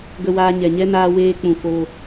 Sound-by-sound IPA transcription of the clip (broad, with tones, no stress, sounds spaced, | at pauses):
ɡ ə˧ w aː˧ ɲ ɛ˨ ɲ ɛ˦ n aː˧ w eː˧ k͡p ũ˨ f o˧